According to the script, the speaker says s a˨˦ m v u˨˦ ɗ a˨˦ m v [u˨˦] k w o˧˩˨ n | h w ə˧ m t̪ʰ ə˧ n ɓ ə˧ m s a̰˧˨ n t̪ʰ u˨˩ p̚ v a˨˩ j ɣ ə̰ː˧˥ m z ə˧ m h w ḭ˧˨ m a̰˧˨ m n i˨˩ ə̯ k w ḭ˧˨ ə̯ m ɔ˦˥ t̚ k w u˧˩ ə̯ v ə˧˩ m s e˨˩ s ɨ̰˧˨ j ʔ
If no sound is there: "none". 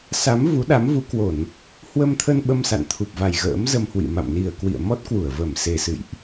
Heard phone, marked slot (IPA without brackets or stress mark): u˨˦